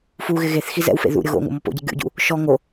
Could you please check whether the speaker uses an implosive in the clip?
no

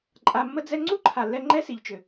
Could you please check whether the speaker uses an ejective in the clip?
yes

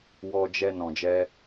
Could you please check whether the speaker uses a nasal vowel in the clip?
yes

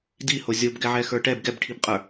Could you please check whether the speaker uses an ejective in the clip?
yes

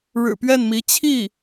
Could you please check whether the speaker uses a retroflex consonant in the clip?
yes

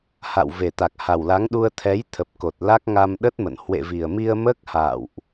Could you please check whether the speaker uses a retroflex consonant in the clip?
no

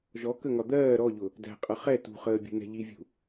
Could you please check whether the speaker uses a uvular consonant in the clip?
yes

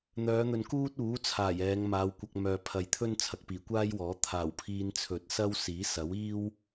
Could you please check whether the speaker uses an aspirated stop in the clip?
yes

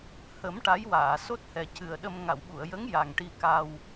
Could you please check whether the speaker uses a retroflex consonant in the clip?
yes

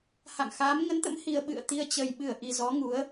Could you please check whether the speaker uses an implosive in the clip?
yes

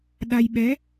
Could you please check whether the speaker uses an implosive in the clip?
yes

